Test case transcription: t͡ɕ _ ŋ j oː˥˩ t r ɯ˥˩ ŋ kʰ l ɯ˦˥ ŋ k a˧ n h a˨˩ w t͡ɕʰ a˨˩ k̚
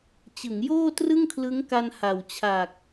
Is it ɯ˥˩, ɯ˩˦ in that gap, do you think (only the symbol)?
ɯ˩˦